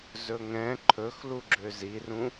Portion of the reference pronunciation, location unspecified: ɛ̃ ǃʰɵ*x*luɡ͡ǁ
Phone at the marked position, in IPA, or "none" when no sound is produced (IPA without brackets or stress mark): x